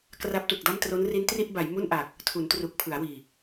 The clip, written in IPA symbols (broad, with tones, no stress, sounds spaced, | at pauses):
k r a˦˥ p̚ t u˨˩ k̚ d a˥˩ m t r o˦˥ n r i˦˥ n t r i˥˩ ʔ b a˩˦ j m u˥˩ n ʔ a˨˩ k̚ | tʰ u˩˦ n t r u˨˩ k̚ pʰ ɯ˩˦ a̯ w iː˨˩